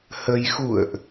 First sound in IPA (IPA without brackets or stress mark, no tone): h